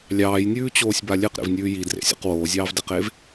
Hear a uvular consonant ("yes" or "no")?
yes